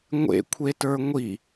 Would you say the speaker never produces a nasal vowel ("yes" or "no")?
yes